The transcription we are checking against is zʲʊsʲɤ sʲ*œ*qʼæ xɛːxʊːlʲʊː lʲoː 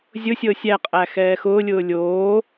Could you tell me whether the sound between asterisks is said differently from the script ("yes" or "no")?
yes